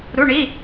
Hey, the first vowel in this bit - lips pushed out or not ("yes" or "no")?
yes